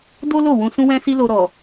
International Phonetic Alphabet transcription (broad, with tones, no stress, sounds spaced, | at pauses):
d o˦ l o˦˨ w ũ˧ s ũ˦ w ɛ̃˦ s i˦ l o˧ ɾ ɔ˨